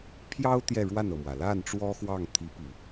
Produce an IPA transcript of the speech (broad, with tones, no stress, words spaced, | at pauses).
pʰjɑ˥ʊ̯ t̪jɛ˥˧ɻwa˥˩nɤ˩mwä˩ la˥˩n ʈ͡ʂwɔ˥xwɑ˥˩ŋt̪ʰi˧˥pi˨˩˦